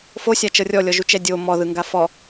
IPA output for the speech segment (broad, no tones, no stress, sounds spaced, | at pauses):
f o sʲ a t͡ʃ ɤ rʲ ɔ lʲ ɔ ʒ u t͡ʃ ɛ dʲ o m ɔ ð ɯ ŋ ɡ a f ɔ